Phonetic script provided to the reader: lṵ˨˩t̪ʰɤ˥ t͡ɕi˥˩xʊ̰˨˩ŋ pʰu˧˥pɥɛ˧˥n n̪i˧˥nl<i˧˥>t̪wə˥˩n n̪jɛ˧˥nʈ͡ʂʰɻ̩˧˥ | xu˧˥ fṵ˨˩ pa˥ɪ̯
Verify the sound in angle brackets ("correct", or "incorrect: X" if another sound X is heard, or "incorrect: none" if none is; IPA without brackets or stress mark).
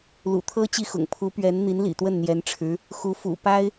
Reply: incorrect: ḭ˨˩